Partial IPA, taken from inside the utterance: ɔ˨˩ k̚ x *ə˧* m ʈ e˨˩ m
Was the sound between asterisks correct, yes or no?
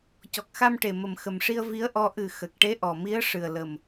no